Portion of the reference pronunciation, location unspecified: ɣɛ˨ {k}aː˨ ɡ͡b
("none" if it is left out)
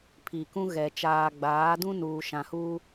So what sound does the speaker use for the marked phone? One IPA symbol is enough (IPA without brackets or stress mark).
t͡ʃ